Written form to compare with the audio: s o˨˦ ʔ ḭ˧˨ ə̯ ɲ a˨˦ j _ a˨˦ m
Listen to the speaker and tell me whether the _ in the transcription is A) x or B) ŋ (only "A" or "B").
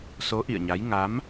B